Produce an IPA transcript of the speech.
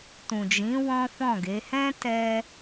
tũ˨d͡ʒĩ˨˦ wɔ̃˦fɔ̃˦˨ɡe˨˦ hɛ̃˦ tɛ˦

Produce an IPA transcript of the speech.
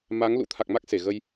ma˨˦ŋ lṵ˧˥t̪ʰa˨˩k̚ma˦˥k̚ se˧˩ɣə˧j

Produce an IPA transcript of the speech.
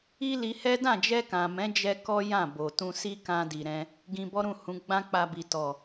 i˦li˧hɛ˦ dã˦˨d͡ʒɛ˧kã˨mɛ̃˨˦ d͡ʒɛ˦kɔ˦jã˦˨ bo˨ tũ˧si˦kã˧di˨ ɾɛ̃˧ | ɡĩ˧bɔ˦ɾũ˦˨hũ˨˦ ɡ͡bã˦k͡pa˧bi˨ tɔ˨

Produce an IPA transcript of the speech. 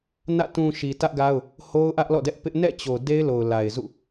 nä̰˦˨ tũ˨ ʃi˨tä˦ʔɡa˦ʊ̯ | ho˦ʊ̯ ʔä˦ʔlɔ̰˦˨dɛ˦ʔpɪ˦ʔ nɛ̰˦˨t͡ɕo˨ de˦ɪ̯lo˨ʊ̯la˨ɪ̯zṵ˦˨

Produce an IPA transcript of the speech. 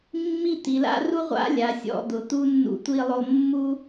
mːi˥˧t̪i˩˧la̰˥ ru˥ʁʷa̰˥lʲa˩˧ sʲɔ̰˥˧d̪ʊ˩˧t̪u˥ nːṵ˧tʷi˧lˠo˧ mːu˥

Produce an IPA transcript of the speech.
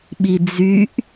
ɓid͡zyʔ

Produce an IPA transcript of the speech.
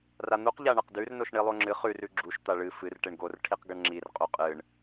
ran̪uq ʎaɳɐqdʉr noʃɳilˠoŋ͡ǁɨ χʉr ʉɡ͡ǁuʃ t̪aɭɨ fɨr ʈeɳɡor ʈʰiqɡɐɳŋ͡ǁir qʼuqʼɨɳ

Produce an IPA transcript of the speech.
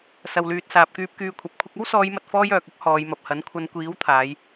sɐ˨wlyː˨t̚saː˨p̚kyː˧p̚ kyː˧kʷʰɐ˨˥p̚kʷʰɪ˥k̚ ɐ˥wsɔː˨˧jmɐ˨t̚fɔː˧j œː˨k̚ʊ˥k̚ hɔː˨˧jmɐ˨p̚hɐ˨˥n kʷʰɐ˨˧nkʷiː˨˥wt̪ʰaː˨˧j

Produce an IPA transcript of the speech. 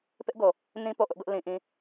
pɪ˦ʔɡo˨ | nĩ˦po˨ʔʊ˦ʔ ɡʊ˦ʔ lĩ˦ʔĩ˦

